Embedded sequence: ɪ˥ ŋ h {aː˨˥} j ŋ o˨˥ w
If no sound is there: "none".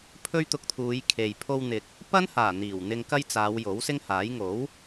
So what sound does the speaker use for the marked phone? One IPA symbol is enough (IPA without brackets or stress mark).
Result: aː˨˥